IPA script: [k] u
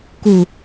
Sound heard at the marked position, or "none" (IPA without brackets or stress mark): k